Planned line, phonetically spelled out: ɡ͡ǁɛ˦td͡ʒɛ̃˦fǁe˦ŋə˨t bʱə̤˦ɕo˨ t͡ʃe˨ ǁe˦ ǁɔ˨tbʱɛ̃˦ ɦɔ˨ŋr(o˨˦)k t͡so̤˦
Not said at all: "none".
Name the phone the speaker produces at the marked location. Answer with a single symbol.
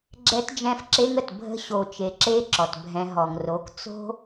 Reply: o˨˦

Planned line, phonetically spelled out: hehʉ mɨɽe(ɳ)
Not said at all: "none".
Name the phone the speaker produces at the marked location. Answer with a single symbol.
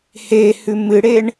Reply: ɳ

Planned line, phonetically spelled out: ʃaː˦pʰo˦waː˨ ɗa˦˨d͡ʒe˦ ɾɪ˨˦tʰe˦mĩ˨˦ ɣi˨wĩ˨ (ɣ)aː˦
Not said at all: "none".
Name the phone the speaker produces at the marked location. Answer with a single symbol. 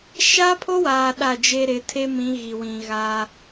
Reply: ɣ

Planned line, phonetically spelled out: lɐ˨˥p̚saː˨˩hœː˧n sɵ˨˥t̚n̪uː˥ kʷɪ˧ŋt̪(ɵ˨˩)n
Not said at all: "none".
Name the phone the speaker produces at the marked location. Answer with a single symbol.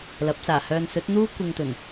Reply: ɵ˨˩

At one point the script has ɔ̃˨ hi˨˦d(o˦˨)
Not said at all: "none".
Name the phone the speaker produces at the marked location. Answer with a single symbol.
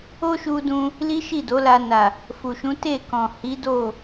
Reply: o˦˨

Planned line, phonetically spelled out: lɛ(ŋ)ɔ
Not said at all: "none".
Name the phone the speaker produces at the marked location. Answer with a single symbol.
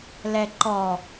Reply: ǃ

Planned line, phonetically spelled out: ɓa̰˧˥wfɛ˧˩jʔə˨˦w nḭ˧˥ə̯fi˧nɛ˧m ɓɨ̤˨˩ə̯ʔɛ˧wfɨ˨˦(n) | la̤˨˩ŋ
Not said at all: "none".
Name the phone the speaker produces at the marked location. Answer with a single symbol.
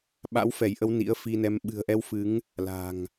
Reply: ŋ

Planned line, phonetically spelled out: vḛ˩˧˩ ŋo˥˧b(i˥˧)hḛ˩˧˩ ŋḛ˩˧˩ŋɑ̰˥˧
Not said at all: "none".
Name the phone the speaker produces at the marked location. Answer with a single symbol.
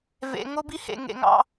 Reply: i˥˧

